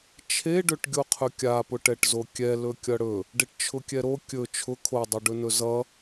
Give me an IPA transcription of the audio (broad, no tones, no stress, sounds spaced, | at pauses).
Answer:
t͡ʃʰ e ɖ ɵ ʈ ɡʲ o qʰ ɵ kʲ a p ʊ ʈ ɛ ʈ z o kʲ ɛ l ɵ kʲ ʌ ɽ ɵ | ɖ e ʈ t͡ʃʰ ʊ kʲ ɛ ɾ o kʲ ɵ t͡ʃʰ ʊ kʰ o dˤ o ɖ ɵ n ɵ z ʌ